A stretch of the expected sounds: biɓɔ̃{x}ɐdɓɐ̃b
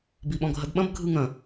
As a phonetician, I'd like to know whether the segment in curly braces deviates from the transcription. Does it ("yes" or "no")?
yes